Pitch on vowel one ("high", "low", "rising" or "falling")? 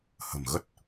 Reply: low